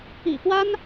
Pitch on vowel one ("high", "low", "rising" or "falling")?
low